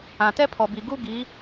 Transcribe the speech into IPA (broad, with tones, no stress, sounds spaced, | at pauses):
ã˨ t ɛ˦ pʰ ɔ˨ b i˨ ɡ u˦ ɡ i˨˦